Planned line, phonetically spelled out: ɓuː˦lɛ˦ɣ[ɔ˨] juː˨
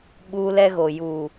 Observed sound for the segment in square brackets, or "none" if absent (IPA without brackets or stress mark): o˨